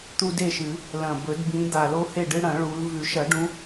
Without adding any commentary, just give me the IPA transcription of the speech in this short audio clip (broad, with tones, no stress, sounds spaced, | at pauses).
t̪ u˦ d e˥˨ ʃ ɨ˨˩˦ | l ɐ̃˨˩ b ɵ˨˩˦ d b ĩ˨˦ d̪ a˨˩ l o˦ h e˥˨ ɖ ɨ˦ ɽ ɐ̃˨˩˦ ɭ u˨˦ l v ʉ˨˩˦ ʃ ɐ˨˩˦ ɖ ũ˨˦